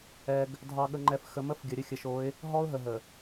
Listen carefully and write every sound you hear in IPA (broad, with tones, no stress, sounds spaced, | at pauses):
ɛ˨ ɡ | dʱ ɑ˨ ɠ ə˨ ŋ͡ǃ ɛ˨ f x ə˨ m ə˦ f ɡʲ ə˨ ɾʲ ə˦ xʲ ə˨ ʃ o˨˦ ɪ̯ | ɦ ɔ˦ ʊ̯ ɦ ə˨ ɦ ə˨